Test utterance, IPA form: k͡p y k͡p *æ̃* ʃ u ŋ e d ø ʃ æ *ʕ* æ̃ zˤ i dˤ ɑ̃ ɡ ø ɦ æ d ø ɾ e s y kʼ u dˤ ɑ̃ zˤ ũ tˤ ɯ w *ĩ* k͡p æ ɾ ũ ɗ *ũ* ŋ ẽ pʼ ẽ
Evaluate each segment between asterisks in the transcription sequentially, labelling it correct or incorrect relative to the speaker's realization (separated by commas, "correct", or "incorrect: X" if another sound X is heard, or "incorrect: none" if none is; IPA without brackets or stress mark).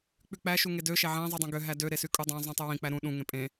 incorrect: æ, correct, correct, correct